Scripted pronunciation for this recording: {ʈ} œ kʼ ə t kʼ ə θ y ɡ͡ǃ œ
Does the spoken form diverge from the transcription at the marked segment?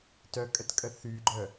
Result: yes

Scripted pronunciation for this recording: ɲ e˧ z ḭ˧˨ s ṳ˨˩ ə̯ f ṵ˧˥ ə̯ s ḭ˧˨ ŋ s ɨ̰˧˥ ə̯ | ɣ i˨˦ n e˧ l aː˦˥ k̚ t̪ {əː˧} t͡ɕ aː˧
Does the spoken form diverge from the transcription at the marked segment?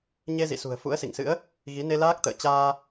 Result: yes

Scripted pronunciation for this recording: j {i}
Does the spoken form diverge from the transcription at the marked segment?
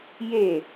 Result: yes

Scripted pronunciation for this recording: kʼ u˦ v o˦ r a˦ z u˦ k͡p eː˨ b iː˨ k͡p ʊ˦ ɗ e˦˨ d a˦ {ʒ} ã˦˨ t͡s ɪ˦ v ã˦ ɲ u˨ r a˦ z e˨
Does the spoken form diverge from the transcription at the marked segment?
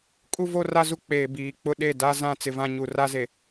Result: yes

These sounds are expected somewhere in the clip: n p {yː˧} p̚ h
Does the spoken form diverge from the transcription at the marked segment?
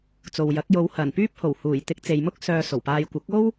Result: yes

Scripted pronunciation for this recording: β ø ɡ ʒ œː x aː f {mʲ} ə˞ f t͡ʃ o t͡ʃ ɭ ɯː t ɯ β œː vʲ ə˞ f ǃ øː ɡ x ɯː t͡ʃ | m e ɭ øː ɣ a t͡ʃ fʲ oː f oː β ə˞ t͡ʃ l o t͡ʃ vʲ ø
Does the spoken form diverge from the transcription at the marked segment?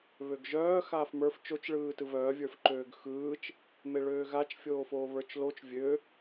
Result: yes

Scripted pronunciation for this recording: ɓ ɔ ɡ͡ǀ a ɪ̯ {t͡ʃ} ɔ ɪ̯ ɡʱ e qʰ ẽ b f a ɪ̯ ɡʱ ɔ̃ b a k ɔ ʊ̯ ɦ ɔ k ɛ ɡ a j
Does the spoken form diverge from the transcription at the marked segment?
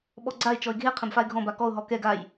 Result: no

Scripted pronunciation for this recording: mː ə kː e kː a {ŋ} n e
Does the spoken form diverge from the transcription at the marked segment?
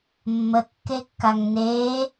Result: no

